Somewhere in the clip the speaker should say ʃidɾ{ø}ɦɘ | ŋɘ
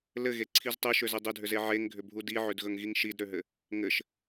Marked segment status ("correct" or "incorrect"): correct